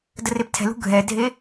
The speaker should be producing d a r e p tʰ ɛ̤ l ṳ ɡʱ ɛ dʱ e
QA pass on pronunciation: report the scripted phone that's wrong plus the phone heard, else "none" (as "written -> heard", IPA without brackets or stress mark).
a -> ə